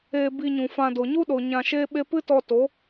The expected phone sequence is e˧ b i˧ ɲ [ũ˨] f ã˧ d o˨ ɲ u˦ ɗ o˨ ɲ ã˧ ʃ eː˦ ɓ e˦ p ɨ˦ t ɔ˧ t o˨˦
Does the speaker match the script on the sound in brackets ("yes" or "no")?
yes